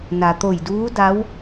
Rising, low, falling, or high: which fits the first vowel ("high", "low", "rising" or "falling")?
low